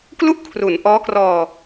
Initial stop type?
plain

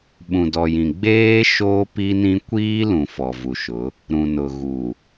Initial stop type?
implosive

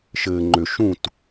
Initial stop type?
click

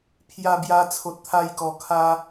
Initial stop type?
aspirated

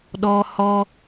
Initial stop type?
implosive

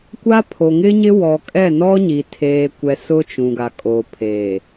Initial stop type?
plain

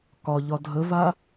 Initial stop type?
plain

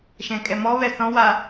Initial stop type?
ejective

